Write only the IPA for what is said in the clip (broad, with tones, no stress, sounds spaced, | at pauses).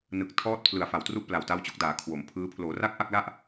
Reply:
n ɯ˨˩ k̚ tʰ ɔː˦˥ t̚ pʰ l ɯ˩˦ a̯ f a˨˩ w t r u˥˩ ʔ p l a˨˩ w t a˦˥ w t͡ɕ o˦˥ k̚ d aː˩˦ kʰ w o˩˦ m pʰ ɯː˦˥ pʰ l oː˩˦ r a˥˩ k̚ ʔ a˥˩ k̚ l a˥˩ ʔ